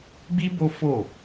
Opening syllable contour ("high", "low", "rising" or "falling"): high